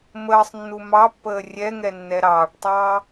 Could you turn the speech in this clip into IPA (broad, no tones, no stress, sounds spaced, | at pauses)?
m əː sˤ nː u m ɑ pː əː rʲ ɛ ŋ ɛ nː ɛ ɾ ɑː ɖ tˤ ɑː